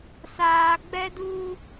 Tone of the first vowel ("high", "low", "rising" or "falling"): low